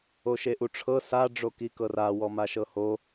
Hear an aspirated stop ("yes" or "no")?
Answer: yes